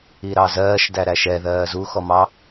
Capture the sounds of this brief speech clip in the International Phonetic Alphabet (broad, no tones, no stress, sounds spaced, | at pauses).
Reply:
i ɾ ɑ z ɜː ʃ d æ ɾ æ ʃ ɛ ð ɜː z u x ɔ m ɑ